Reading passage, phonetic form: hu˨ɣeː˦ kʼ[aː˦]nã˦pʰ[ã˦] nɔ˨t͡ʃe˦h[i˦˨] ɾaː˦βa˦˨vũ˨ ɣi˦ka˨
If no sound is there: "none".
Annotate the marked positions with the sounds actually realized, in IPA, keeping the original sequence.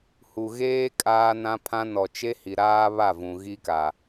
aː˦, ã˦, i˨

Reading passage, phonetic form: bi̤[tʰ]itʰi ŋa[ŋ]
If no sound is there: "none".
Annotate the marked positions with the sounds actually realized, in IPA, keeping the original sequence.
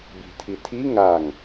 tʰ, ŋ

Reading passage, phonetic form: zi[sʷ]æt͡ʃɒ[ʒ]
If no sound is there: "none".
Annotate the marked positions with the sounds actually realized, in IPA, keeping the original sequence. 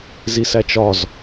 s, z

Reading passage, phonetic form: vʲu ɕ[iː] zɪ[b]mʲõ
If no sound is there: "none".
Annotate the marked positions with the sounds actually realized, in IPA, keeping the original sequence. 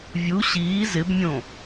iː, b

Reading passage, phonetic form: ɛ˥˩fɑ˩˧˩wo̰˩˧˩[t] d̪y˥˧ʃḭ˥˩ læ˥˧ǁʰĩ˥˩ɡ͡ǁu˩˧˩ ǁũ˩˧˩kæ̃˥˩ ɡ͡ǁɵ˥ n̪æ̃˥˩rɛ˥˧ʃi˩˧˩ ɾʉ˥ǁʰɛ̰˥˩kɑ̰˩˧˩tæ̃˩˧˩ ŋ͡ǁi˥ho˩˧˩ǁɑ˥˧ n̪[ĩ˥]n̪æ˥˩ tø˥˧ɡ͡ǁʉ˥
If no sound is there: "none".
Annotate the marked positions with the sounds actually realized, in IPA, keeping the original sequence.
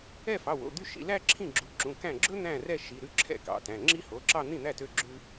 none, ĩ˥˩

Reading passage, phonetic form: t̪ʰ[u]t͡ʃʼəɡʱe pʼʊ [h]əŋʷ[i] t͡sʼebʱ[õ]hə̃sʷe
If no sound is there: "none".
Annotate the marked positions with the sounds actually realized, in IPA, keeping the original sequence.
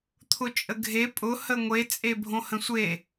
ʊ, h, e, õ

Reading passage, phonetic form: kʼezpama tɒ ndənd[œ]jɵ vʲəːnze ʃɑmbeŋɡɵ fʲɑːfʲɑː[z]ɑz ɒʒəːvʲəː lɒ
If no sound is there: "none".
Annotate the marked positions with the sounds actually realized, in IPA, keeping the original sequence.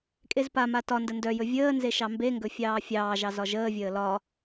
œ, ʒ

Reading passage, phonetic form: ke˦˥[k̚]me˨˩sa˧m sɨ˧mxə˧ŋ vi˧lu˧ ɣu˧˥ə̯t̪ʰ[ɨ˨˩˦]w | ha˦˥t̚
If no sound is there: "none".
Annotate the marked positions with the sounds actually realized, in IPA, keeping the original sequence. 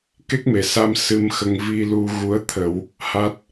k̚, ə˨˩˦

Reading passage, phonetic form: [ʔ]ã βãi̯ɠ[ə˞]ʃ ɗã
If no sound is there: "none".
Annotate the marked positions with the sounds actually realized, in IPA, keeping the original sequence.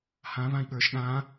h, ə˞

